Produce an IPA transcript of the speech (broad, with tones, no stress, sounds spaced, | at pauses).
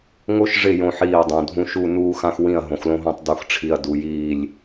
ŋ o˦ ʃ ʐ ɪ˦˨ j õ˦ ħ iː˦˨ ɐ̯ dˤ õ˨ dʱ ũ˦ ʃ u˦˨ n uː˦ x ã˦ x w ĩ˦˨ ɐ̯ ɦ õ˨ x l õ˦ ɦ õ˦˨ tˤ d u˨ x ʈ͡ʂʰ i˨ ɐ̯ d u˨ j iː˦˨ lʲ